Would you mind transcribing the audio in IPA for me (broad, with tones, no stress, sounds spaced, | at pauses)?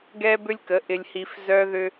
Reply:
ɡ ɛ˦ b ʏ˦ lʲ k ə˨˦ ʔ ɪ˨ lʲ h i˨ f z œ˦ ð ʏ˦